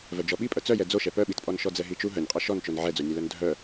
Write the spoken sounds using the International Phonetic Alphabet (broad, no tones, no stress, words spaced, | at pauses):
vœd͡ʒɔɓipʼœ t͡sœjɛ d͡zoʃɛ pœɓitpʼɔn ʃɔd͡zɛɦit͡ʃu ɦœnʲqʼœ ʃɔnt͡ʃon ʕɛd͡zonʲœlœn dʱœ